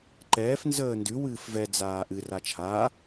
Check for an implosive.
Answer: absent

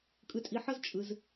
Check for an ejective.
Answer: present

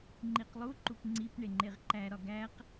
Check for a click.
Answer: present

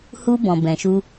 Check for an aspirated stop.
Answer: absent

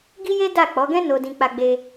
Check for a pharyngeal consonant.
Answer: absent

